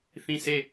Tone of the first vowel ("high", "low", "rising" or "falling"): falling